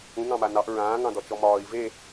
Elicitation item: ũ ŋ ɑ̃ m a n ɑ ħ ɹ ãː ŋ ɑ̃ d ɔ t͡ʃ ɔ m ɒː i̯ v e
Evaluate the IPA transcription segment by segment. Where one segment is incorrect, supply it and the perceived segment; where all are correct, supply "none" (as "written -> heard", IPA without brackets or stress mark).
ħ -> ʔ